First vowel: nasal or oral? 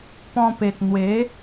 nasal